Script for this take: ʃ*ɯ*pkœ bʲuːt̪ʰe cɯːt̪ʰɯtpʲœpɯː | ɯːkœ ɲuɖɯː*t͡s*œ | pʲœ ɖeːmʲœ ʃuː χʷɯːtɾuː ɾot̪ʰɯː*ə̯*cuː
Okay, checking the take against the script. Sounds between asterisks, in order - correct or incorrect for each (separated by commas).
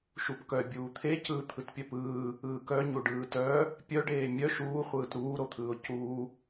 incorrect, incorrect, incorrect